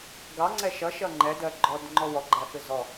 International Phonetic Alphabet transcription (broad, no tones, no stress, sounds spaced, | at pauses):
ɡ ɑ ŋ͡ǀ ɛ ʃ ʌ ʃ ʌ ŋ͡ǃ ɛ d ɜ ɡ͡ǃ ɔ d ŋ͡ǃ ɔ w ɔ ɡ͡ǃ æ f ɪ z ɔ